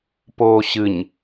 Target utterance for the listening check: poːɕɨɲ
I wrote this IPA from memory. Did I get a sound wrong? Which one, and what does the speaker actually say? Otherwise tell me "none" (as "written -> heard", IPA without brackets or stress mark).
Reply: none